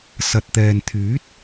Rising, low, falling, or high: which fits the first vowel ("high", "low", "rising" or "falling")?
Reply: low